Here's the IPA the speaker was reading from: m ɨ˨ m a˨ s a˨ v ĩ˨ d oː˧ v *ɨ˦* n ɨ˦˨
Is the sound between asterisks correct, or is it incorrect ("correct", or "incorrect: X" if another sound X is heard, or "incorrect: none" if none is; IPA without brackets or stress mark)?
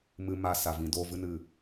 correct